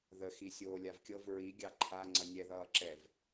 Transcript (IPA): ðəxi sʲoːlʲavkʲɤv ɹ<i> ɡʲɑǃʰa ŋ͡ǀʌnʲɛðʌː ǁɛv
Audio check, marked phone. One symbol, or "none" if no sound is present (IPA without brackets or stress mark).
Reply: i